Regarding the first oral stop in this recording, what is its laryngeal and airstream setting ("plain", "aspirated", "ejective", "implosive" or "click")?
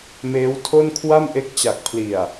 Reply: aspirated